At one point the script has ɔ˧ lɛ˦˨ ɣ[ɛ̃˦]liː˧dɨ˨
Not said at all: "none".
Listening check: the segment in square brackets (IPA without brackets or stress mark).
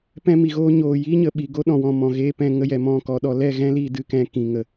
ɛ̃˦